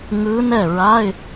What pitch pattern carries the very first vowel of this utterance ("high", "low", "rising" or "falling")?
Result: rising